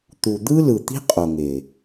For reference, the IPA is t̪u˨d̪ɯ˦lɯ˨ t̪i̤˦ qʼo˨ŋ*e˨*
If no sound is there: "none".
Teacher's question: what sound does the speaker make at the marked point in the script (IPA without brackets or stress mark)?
e˨